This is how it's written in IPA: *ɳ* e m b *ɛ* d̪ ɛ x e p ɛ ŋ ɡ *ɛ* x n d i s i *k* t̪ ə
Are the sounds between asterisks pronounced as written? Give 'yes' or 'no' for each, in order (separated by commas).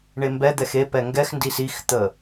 yes, yes, yes, no